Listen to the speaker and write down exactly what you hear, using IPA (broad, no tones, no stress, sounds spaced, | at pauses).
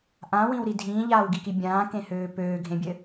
ʔ ã w ĩ w ɾ i dʱ ĩː ʎ aː w ɡ i k i bʲ ãː k ẽ h øː p øː ɡʱ ẽ bʲ ɘ